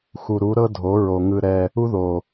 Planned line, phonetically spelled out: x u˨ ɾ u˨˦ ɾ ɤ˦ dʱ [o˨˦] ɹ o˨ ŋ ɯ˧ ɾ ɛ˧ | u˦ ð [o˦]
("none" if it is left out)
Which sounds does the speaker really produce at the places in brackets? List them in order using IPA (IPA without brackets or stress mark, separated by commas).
o˨˦, o˨